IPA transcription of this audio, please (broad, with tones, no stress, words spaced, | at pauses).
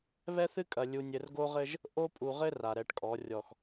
βɛ˦θɨ˦kʼɐ˨ lʲu˨nʲɘ˨rɡo˦ʁɘ˦ʒ | ʔo˦ pʼu˨ʁɘ˦ ra˨ɾɛ˨˦ʈkʼɔ˨˦ rʲɔ˨x